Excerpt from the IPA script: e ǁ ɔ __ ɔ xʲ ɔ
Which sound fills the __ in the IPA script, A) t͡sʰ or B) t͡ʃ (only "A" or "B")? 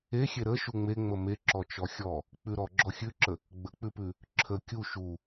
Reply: B